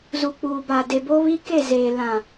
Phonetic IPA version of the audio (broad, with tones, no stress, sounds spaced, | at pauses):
z u˨ k͡p uː˨ b a˨ d e˨ b o˦ β i˦ k e˦˨ z eː˨ l ã˨